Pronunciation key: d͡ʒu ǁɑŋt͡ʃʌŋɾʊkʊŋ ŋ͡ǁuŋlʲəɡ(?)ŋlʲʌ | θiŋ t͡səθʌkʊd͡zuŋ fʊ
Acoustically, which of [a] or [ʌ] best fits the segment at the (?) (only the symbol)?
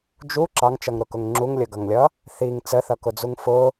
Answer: ʌ